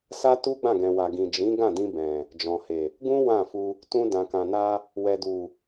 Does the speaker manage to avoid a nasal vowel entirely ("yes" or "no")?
no